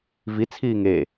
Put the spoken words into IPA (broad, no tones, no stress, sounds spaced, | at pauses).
v i t͡sʰ iː ŋ e